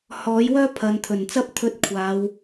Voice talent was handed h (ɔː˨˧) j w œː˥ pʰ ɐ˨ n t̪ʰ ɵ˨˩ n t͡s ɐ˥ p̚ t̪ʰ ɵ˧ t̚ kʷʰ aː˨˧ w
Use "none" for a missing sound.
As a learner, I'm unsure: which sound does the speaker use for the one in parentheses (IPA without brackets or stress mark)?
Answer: ɔː˨˥